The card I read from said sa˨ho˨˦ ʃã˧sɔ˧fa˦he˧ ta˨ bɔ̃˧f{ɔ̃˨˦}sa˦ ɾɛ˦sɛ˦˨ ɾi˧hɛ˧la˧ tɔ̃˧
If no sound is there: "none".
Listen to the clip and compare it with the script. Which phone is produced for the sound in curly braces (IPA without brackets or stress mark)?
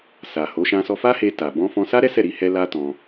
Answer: ɔ̃˧